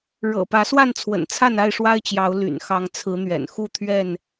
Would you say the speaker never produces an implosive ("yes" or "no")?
yes